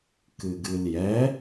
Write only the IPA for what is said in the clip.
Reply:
kɨɡɨljɛ

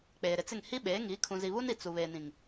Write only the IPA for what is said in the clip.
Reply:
k͡peː˨ɾɪ˨t͡sɪ˦˨ŋ hi˦ ɓeː˨˦ ŋi˨˦ kʰũ˨zi˨βu˦ni˨ t͡su˨ βeː˨nĩ˨ŋ

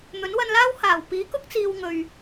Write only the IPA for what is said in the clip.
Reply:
n̪ɵ˨˥nwɐ˧nlaː˥w haː˨˩wpiː˨˥kʊ˥k̚t͡siː˨w ŋɵ˨ɥ

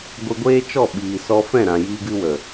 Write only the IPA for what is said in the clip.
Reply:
ɡʷi˧ɡʷeː˦t͡ʃɔ˦˨ ɓiː˨sɔ˧ fɛ̃˦˨ɾã˨jiː˧ɡɨ˧ wə˨

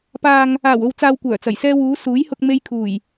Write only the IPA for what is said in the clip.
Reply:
paː˨ŋ | aː˨˩wo˨wt͡saː˨w kʷœː˨˩t͡sɐ˨˩jsɛː˧wuː˨˧ suː˨˥jhʊ˧k̚me˧j kʰuː˨˩j

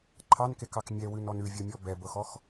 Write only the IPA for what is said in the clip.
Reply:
ǃʰɑnkekɑk mʲɛwʉnɔn ʉvʲɤmʲɔ bɛbɤxɔx

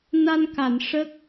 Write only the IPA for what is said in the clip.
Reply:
na˧nka˨˩˨n ʂə˦˥k̚

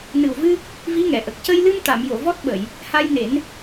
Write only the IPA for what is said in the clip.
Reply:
nɨ˨˩wvɨ˧ | vi˧˥ŋɛ˨˩˨ʔə˨˩k̚ cə˧jlɨ˧m t̪a˨˩˨mjo˨˩˨ vɔ˦˥t̚ɓə˨˩˨j | ha˧jne˨˩˦n

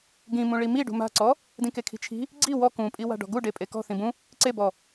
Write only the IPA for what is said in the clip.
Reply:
ɡĩmũ ɭimiɖṳ ma̤ǀɔ | dĩkekʰi̤t͡ʃʰi̤ | ɡ͡ǀi wɔ kũpʼi wa̤ɖɔ̤ɡu ɖepʼekɔ̤ θĩbũ | ǀebɔ

